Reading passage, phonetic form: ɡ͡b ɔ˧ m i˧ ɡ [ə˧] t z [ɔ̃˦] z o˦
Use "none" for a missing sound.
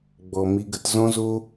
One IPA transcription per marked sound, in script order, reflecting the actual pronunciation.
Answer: ə˧, ɔ̃˦

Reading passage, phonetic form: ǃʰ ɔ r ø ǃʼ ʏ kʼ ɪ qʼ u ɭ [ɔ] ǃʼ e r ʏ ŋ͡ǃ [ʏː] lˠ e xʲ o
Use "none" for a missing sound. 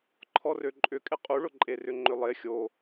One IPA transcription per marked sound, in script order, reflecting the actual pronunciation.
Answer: ʊ, ʏ

